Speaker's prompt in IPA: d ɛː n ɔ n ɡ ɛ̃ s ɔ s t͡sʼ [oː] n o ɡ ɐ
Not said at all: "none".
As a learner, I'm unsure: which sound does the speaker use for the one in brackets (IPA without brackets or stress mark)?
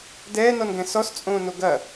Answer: õː